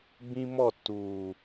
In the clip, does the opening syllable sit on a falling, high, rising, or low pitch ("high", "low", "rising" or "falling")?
high